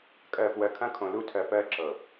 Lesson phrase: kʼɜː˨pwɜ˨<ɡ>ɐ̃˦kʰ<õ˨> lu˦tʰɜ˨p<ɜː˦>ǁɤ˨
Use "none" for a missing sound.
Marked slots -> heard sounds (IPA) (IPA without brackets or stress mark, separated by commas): kʰ, õ˨, ɜː˦